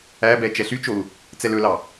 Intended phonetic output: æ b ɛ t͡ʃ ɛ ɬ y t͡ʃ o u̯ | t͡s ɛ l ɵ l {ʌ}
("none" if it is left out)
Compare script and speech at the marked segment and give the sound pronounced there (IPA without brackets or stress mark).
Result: ɑ